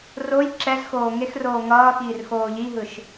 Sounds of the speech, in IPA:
roj ǁɛz xoːŋexroː ŋʌːxiːr xoːʎiɦɯʃ

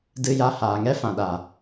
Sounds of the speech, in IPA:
dɨ˧ja˧ haː˨ŋɛ˦ fã˨ɗa˨

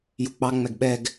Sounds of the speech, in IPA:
juk͡pɑ ŋ͡mɛɡɓɛɡ

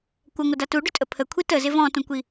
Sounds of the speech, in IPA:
kʷəŋʷɪda tuɖʏtʼə pʰəkʷʰi təzɪ vɔ̃tũkʷi

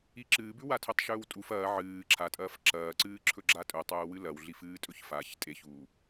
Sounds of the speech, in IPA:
iǁɨːbʉ watʰɵtˤʃɵːwtʼuf ɐː ʕɨː ǁʰatʼɐːf ǁɐːǀɨːǁʰɵ ɡ͡ǁatʼɵ tˤɵːwɨlɐwɮif ɨːtʼɵçfaç tʼeçuː

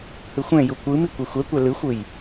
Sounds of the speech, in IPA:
hɯxʷɛ̃ju kʷɯmi kʷexʷɛkʷɛ lɯxʷɯj

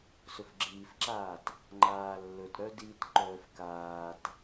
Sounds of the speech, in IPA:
sɵfɡ͡ǁiːfǁaːt | ŋ͡ǃaːlːɵt ɾœdit ǃœːfkaːt

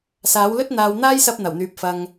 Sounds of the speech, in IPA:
saː˨˥wlɵ˥t̚n̪aː˨w n̪aː˥jsɐ˧p̚ n̪ɐ˨˩wn̪yː˨p̚ fɐ˨ŋ

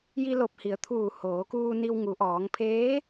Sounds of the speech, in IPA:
ji˧lo˧˩p̚hi˩˧ə̯t̪ʰuː˧˩ hoː˩˧kuː˧ni˧w ŋu˩˧ʔɔː˩˧ŋ pʰeː˧˥

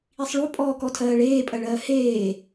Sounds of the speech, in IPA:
isˤɭupʼɔːkɔ tʰɜːɭeːpʼɜɭɜː heː

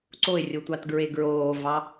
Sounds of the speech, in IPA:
ǀoɪ̯rʲotʷɑtɡɹe ɡɹoːvɑ

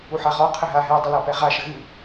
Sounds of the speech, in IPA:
uħaʁɔ qʰɘɦaɦɛ dˤilapɛʁa ʃɘɣɨ

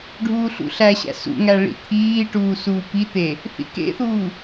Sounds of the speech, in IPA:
ɖʱuːɬṵɬæɕæ̰ sṵŋæ ɭḭt̪ʰiːʈuː suːpit̪e | θḭkḛθuː

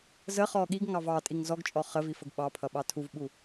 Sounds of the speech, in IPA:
zə χɔɠiɡŋɑv ɑtʼiŋ zɔɡt͡ʃʼɔ χəvi fəɡɓɑpʰʌ ɓɑtʰuvɓu

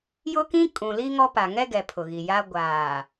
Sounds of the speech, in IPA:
jʊ˦kĩ˦ kʼũ˨li˦ŋɔ˦ pa˨ŋɛ˦ɡɛ˨ pʰʊ˨ɣi˨ja˦ ɡʷaː˨

